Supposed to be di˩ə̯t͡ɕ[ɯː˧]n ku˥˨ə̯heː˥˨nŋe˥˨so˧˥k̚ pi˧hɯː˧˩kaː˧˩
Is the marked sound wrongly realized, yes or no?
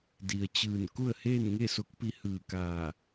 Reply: yes